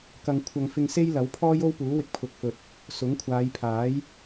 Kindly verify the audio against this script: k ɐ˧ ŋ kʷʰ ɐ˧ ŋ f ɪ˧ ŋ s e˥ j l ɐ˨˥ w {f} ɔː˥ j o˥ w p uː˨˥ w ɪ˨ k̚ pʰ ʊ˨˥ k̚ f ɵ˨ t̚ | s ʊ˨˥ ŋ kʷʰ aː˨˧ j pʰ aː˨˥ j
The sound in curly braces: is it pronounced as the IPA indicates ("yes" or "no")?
no